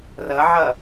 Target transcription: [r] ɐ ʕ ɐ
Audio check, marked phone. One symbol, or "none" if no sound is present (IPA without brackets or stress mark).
r